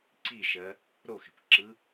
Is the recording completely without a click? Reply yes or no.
no